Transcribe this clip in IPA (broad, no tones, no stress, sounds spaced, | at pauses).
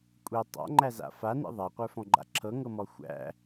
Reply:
kʷʼ i tˤ a̰ ŋ͡ǃ æ z a̰ f a n ḭ ðˤ a qʷ ə˞ f ɔ̃ ɡ͡ǃ a̰ ǁʰ ɤ ŋ ɤ m ɔ xʷ æ̰